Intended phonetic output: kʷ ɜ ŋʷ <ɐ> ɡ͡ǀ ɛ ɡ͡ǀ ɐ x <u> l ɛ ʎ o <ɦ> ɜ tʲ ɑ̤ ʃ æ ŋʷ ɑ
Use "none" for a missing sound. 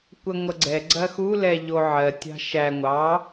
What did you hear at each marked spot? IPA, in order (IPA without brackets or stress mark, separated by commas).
ɐ, u, ʕ